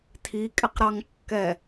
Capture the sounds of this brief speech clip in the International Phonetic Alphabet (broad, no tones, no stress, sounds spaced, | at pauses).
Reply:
tʰ i kʼ ɪ q ɾ ɑ ŋ kː ɛ